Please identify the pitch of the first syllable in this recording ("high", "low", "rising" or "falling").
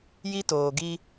high